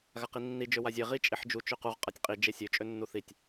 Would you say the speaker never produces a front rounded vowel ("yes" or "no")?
no